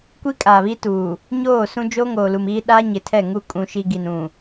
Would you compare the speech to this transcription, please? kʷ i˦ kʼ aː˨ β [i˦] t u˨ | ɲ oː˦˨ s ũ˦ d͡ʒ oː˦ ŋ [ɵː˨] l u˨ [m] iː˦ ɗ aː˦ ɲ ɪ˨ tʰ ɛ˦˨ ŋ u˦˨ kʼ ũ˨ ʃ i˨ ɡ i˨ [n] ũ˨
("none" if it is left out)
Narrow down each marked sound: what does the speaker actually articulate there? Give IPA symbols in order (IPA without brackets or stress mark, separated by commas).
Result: i˦, oː˨, m, n